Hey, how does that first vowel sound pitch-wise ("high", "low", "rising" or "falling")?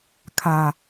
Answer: low